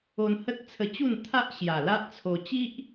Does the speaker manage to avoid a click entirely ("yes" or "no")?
yes